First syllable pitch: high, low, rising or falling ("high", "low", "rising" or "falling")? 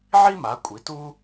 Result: high